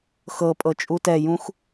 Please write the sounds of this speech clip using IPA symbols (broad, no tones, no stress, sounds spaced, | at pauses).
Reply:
x ɤ pʼ ɤ t͡ʃʼ u t ɛ j ũ x